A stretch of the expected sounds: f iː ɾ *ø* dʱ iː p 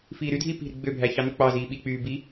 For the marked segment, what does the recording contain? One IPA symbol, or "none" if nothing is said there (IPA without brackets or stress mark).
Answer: y